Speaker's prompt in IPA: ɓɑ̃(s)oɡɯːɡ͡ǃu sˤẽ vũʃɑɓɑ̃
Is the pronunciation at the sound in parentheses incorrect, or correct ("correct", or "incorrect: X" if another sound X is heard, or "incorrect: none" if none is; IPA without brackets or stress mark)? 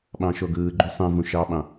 incorrect: ʃ